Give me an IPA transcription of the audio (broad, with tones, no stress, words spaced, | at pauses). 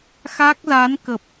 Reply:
xa˦˥k̚za˨˦nkə˨˩p̚